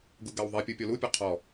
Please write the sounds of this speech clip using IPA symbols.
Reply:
ɡ u ɡ a w ðˤ i pʲ u pʲ ɔ l u pʲ ɒ qʰ ɔ

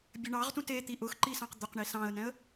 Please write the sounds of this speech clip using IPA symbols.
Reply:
bʲ ɘ ɳ ɑ ʁ t ũ t e t̪ i ʔ ʊ x ǃ i s ɑ̃ q d̪ ʊ q ɳ i s ɑ̃ ə̯ n ɛ̃ ə̯

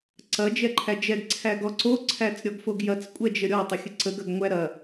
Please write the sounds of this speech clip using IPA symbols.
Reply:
ǀ ɐ d͡ʒ ɛ ǃʰ æ d͡ʒ ɛ ɡ ǀʰ æ ɡ ɔ ǀ o ǀʰ æ t͡s ɾʲ ɔ ɡ f o ɡ j ɐ t͡s kʷʼ ɛ d͡ʒ ə ɾʲ ɔ tˤ ə xʲ ə ǀ ə ɡ ɐ ɡ ŋʷ æ ɾ ɐ

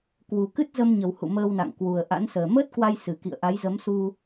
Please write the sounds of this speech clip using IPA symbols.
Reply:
k w u˨˩ k ɨ˦˥ t̚ z ə˧ m ɲ ə˨˩ w h ṵ˧˨ m əː˧ w n a̰˧˨ ŋ k w u˨˩ ə̯ ʔ a̰˧˥ n s əː˨˩ m əː˦˥ t̚ k w a˧ j s ɨ˨˩ k ḭ˧˨ ə̯ ʔ a˨˦ j z ə˨˦ m s u˧

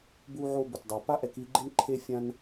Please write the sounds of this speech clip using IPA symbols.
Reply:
b u˧ ʕ o˧ b ʊ˩ t dˤ a˩ p a˥ ʔ ɛ˧ k i˧ ɡ͡ǃ ɪ˥ n ǃʰ e˧ fʲ ã˧ n

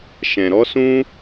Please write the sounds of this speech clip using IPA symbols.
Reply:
ʃ ɛ̃˨ ɾ ɔ˦ s ũ˦

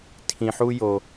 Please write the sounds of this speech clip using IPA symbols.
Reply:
tʰ ĩ˧ ħ u˥ j o˧

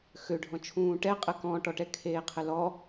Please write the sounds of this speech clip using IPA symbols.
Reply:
x ø ɖʱ ɔ̃ t͡ʃʰ ũː ʈ ɛ qʼ ə k ɔ̃ ʈ ɔ ʈ ɛ kʰ eː qʰ ə l ɔ

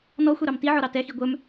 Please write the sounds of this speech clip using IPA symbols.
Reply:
n ɔ xʷ ɛ ɾ ɑ m t i ʕ ɔ ɾ ɑ t ɛ x i ɡʷ œ m

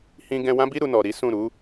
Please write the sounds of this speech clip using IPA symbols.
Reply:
h ĩ˧ ɡ ɛ̃˧ w ã˦ b i˦ ɾ u˧ n ɔ˨ ɾ i˨˦ s ũ˦˨ ɾ u˨˦

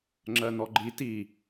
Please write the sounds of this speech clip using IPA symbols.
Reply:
ŋ͡ǁ ɜ n ɔ ɡ͡ǃ i t i

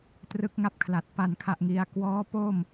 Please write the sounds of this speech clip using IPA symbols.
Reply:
t r ɯ˦˥ k̚ ŋ a˥˩ p̚ kʰ l a˨˩ t̚ p a˨˩ n kʰ a˨˩ ʔ ŋ i˩˦ a̯ k w ɔː˦˥ p o˥˩ m

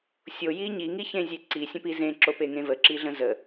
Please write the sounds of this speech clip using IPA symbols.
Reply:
sʲ o j i ɲ i ŋ i ç ẽ zʲ e ǀ i sʲ ə̃ p i z ẽ ǁ o p e ŋ ẽ v ə ǁ i ɮ ə̃ z ə

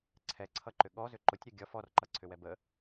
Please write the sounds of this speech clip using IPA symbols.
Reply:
ǀʰ ɛ ǀʰ ʌ ǃ ʏ ɠ ɔ z ʏ ǃ ʊ tʲ ɾʲ ʌ ɡʲ ʌ f ɔ r ǃ ʌ ǀʰ ʏ w ɛ b ə

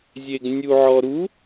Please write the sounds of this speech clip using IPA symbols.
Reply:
zʲ e ɡ nʲ u ʕ ɔ ɾ u

